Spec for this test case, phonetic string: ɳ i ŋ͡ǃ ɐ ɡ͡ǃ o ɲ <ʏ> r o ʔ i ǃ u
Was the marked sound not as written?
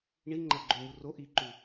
yes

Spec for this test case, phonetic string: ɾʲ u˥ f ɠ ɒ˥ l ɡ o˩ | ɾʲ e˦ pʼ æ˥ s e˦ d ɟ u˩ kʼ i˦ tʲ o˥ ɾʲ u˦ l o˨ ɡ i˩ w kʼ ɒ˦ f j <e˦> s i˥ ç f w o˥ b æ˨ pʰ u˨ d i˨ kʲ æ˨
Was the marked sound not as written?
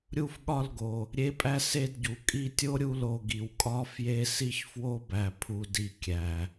no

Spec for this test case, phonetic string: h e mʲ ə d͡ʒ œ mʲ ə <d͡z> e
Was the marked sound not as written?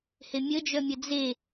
no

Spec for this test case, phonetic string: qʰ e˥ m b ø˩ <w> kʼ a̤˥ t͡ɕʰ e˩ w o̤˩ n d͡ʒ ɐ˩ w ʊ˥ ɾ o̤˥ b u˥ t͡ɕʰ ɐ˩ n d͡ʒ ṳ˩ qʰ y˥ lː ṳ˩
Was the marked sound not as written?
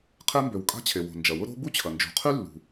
no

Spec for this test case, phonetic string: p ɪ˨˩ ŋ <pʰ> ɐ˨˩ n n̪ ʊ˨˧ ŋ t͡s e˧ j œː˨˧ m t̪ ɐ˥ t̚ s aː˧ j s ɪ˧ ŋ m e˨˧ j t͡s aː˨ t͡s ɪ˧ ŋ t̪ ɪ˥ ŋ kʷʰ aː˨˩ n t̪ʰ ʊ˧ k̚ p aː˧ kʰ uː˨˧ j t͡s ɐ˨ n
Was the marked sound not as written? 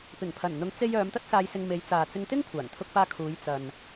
no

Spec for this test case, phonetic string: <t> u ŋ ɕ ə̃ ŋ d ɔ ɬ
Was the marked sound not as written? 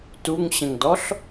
no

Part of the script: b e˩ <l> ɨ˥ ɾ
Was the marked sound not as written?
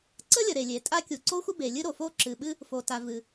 yes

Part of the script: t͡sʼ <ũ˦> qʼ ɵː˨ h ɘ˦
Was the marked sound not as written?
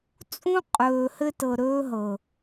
no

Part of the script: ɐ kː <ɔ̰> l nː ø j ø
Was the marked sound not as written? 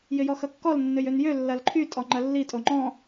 yes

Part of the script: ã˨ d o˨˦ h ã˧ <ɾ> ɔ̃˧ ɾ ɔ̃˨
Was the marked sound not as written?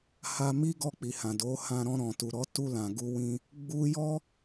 no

